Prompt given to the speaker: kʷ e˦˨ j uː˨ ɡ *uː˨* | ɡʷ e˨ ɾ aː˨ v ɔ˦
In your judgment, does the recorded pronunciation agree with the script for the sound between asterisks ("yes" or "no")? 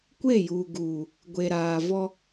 yes